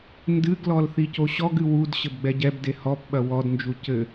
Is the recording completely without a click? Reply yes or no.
yes